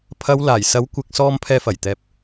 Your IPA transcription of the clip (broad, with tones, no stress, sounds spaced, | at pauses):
pʰ ɐ˨˧ w l aː˨˩ j s ɐ˨˥ w kʷ ɪ˨ k̚ s ɔː˧ m pʰ ɛː˧ f ɐ˨˩ j t̪ ɛː˨ p̚